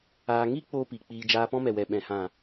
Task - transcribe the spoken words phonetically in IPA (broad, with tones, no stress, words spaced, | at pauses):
aː˧ ŋi˦ k͡poː˦pi˨k͡piː˧ d͡ʒaː˧pɔ̃˦mɛ˨ wɛ˨ɓɛ̃˨hã˨